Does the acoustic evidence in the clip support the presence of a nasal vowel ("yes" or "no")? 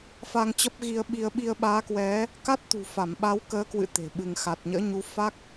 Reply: no